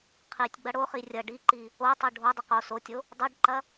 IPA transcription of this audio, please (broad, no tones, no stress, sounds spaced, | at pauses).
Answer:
qʰ i tʲ ɡ͡b ɐ ɽ o χ i rʲ ɐ ɖ i ǃ i | o tˤ o ɖʱ o dˤ ə q o s o tʲ o | dˤ o ɖ ǃ ɐ